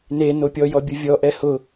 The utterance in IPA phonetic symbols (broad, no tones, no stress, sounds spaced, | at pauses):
n e n o pʲ ɔ j ɔ bʲ ʊ vʲ ɔ ʔ ɛ h ʊ